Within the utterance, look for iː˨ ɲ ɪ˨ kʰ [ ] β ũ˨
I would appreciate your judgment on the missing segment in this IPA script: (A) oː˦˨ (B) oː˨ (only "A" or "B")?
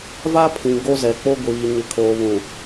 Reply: B